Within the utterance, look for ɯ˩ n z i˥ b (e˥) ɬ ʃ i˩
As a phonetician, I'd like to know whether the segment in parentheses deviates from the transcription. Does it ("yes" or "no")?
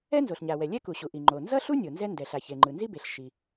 yes